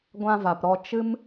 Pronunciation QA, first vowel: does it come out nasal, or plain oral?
nasal